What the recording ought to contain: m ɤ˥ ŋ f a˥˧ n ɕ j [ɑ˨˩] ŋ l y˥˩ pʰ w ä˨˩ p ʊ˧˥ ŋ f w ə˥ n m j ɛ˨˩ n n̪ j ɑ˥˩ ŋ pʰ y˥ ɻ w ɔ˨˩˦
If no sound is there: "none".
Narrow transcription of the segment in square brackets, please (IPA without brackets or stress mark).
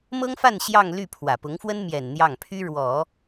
ɑ˥˧